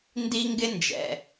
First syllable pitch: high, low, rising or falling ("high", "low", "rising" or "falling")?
high